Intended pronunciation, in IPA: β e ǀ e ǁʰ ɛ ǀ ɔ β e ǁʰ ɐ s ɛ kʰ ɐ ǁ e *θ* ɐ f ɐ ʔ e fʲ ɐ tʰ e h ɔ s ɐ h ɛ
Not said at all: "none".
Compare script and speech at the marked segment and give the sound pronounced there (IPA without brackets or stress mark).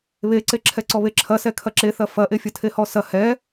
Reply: θ